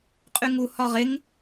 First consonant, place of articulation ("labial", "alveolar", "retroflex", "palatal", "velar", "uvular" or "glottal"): uvular